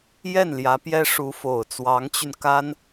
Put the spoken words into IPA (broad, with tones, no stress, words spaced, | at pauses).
jɛ˥˩n ljä˧˥pjɛ˥ ʂu˧˥fo˨˩ʊ̯ t͡swɑ˧˥ŋt͡ɕy˧nka˥n